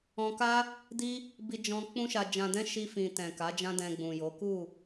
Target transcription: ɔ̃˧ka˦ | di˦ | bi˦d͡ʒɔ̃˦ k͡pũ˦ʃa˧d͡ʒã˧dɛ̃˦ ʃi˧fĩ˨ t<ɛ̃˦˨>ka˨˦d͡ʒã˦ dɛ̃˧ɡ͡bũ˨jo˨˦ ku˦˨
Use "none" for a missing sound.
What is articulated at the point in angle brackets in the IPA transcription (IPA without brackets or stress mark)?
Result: ɛ̃˨